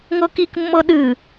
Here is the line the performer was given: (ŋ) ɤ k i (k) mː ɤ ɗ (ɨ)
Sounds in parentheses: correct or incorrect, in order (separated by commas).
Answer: correct, correct, correct